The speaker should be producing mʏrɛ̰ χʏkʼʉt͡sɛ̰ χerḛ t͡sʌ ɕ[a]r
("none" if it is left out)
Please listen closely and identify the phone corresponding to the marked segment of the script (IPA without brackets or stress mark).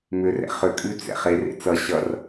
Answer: ʌ